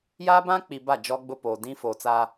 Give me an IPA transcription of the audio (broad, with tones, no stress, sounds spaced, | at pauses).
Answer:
j aː˦ b ã˦ k͡p i˨ b a˦˨ d͡ʒ ɔ˦ ɡ͡b ʊ˦ p oː˨ d ĩ˦ f oː˨ t͡s aː˦